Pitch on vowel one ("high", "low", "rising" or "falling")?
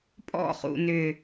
falling